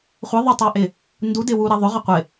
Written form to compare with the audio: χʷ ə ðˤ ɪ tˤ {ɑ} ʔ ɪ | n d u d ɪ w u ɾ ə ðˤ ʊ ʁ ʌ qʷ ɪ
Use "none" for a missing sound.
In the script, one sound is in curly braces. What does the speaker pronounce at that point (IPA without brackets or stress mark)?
ɑ